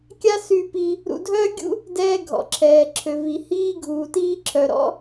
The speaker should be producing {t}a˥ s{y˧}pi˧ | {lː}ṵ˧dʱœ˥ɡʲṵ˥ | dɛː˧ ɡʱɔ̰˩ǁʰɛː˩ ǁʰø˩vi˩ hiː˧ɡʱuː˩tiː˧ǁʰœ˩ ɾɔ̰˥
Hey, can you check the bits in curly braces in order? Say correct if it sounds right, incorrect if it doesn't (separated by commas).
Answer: incorrect, correct, incorrect